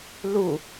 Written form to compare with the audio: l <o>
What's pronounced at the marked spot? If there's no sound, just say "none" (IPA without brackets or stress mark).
u